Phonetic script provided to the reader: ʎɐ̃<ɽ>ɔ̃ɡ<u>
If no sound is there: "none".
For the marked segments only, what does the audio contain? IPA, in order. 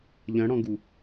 ɽ, u

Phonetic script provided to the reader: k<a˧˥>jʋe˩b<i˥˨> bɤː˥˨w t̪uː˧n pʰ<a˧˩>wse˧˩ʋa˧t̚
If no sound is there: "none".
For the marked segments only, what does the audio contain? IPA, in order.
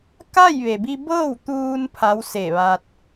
a˥˨, i˧, a˧˥

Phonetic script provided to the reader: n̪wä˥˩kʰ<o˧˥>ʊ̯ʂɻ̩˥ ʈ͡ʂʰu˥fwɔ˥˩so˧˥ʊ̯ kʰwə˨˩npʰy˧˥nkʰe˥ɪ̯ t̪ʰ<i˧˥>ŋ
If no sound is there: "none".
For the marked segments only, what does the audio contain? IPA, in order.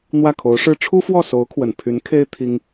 o˧˥, i˥

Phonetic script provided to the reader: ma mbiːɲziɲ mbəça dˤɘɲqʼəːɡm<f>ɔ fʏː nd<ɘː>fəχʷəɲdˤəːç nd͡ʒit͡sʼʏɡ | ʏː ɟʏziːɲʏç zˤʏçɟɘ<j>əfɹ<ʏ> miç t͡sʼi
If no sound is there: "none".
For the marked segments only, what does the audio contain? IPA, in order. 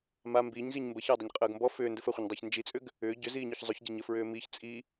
b, ɘ, ɲ, ʏː

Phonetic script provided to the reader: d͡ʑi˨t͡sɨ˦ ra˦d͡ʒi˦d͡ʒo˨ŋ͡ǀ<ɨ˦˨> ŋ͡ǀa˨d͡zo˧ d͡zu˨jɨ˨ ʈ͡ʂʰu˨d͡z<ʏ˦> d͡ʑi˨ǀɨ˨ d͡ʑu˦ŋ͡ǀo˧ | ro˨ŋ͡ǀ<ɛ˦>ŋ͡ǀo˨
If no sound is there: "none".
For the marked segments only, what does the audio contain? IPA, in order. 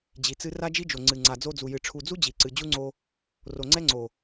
ɨ˨, u˦, ɛ˦

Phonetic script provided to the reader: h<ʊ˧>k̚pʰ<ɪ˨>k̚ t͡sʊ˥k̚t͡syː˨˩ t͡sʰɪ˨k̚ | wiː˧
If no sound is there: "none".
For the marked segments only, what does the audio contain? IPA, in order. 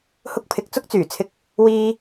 ʊ˧, ɪ˨

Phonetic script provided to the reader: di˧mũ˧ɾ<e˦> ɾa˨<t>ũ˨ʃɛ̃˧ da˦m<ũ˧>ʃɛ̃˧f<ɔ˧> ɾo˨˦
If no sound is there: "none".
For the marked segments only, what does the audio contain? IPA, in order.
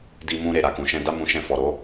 e˨, k, ũ˧, ɔ˨

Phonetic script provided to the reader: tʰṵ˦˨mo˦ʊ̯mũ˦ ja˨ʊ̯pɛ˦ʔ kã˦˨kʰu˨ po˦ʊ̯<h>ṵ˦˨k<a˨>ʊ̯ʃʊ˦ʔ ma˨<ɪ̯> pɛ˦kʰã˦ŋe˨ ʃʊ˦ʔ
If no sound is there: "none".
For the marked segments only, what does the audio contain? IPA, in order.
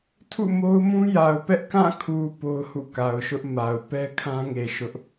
h, a˨, ʊ̯

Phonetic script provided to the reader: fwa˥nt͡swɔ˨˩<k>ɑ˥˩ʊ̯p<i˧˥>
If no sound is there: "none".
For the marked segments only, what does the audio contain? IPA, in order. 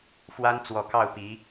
k, i˧˥

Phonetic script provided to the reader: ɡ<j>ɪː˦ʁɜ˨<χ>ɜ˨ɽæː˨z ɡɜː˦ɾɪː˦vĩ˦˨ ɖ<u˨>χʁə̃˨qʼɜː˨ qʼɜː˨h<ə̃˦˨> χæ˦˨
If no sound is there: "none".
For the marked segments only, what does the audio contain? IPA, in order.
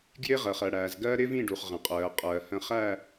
j, χ, u˨, ə̃˦˨

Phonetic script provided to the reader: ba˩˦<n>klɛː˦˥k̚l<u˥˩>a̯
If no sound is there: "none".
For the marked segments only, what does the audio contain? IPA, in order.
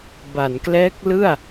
n, ɯ˥˩

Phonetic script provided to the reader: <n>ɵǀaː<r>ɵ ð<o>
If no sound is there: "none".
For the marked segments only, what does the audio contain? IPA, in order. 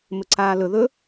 m, l, ɵ

